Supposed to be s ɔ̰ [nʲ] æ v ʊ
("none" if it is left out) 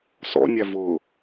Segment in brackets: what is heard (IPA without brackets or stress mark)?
nʲ